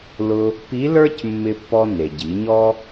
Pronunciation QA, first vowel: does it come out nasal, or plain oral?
oral